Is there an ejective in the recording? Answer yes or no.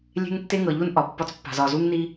no